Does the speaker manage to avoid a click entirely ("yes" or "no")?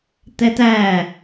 yes